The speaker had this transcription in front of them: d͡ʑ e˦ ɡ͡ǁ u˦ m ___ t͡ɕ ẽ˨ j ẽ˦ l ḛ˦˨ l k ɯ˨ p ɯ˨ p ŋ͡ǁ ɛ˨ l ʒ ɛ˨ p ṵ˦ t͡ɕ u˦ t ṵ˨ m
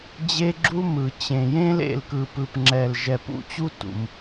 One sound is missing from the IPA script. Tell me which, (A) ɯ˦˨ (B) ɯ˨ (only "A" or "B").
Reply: B